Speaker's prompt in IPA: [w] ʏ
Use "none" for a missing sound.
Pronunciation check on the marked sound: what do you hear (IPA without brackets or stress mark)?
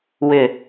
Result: w